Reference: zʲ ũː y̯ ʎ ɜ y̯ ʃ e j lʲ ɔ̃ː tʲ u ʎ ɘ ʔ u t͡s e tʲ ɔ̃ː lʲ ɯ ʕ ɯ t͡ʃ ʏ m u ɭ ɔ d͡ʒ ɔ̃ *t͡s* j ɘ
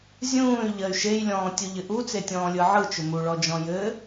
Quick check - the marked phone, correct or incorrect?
incorrect: none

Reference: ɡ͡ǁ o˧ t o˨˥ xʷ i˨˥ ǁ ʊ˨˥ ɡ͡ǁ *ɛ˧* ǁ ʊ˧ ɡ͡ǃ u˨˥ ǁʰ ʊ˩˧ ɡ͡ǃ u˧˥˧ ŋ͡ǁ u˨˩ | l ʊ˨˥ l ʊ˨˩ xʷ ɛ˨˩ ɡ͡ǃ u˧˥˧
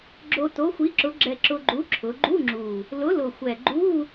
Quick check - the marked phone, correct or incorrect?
correct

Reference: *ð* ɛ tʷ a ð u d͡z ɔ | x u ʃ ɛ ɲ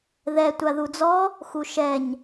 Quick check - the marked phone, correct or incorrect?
correct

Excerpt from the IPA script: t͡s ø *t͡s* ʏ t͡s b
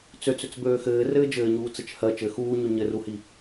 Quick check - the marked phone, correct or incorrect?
correct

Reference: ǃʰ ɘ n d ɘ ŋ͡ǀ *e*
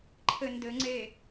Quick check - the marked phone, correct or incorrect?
correct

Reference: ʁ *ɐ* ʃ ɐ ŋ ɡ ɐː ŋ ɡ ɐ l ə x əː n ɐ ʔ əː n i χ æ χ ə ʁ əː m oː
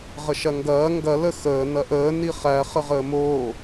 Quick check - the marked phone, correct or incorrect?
incorrect: ə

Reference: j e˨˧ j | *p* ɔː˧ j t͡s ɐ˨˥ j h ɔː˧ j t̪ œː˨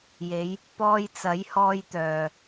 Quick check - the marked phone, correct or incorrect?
correct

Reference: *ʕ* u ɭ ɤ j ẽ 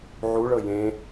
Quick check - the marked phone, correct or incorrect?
correct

